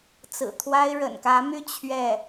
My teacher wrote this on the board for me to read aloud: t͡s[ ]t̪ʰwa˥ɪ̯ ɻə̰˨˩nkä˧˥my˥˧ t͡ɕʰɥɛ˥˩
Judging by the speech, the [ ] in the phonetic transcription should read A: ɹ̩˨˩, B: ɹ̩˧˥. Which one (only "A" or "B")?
A